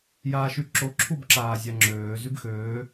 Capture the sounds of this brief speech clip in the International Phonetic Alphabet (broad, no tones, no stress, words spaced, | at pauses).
jaːʃyǁo ǁʰubǁaːzʲaŋ͡ǁøː zybxøː